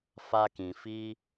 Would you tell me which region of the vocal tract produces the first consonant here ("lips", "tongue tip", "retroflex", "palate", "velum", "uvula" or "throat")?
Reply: lips